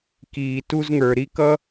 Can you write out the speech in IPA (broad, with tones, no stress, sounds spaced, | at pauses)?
k iː˩ t u˧ z ŋ ə˞˩ ɾ i˥ k ʌ˥